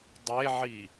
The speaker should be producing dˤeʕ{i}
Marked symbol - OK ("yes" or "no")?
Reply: yes